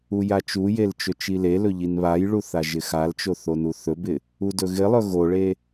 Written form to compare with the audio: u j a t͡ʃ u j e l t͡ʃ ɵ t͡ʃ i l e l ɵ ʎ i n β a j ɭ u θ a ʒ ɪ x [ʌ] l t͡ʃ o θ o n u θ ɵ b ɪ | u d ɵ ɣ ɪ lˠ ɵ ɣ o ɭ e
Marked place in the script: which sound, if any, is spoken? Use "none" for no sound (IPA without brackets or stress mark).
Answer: a